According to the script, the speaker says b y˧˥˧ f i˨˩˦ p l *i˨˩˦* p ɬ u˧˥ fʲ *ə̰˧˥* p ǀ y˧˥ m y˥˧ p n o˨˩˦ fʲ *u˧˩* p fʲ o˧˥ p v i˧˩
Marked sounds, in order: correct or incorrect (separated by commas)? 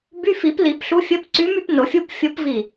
correct, incorrect, incorrect